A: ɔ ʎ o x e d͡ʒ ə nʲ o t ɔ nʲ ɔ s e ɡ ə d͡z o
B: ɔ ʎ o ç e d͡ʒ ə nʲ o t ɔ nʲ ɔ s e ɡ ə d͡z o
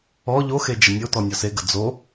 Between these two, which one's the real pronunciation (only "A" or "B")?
A